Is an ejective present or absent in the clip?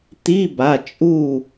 present